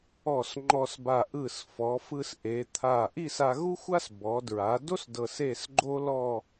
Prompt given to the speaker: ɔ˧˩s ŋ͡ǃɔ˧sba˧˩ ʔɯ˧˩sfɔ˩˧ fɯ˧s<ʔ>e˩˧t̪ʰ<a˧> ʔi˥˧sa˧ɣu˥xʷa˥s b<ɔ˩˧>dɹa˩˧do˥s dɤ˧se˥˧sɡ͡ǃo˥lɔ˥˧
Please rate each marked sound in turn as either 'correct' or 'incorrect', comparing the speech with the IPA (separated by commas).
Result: correct, incorrect, correct